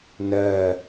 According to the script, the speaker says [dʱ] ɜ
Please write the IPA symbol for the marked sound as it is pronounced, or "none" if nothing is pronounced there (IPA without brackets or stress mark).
n